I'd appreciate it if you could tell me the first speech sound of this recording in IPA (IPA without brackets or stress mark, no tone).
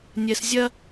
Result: nʲ